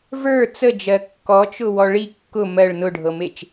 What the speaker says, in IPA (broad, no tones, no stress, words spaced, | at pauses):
və˞ t͡səd͡ʒɜ kːɔt͡ʃʊ wɔɭi kːʊ mɜɭ nʊɖʱɤmet͡ʃ